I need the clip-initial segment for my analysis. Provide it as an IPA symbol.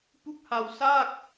p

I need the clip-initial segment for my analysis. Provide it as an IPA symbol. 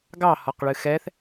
ɡ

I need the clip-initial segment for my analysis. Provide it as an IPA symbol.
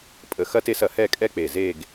pʼ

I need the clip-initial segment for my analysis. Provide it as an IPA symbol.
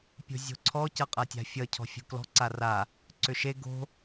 pʲ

